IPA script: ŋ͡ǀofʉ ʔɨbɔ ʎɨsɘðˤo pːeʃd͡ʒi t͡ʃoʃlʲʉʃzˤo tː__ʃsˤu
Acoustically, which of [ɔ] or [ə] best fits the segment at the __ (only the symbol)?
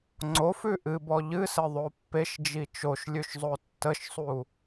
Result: ə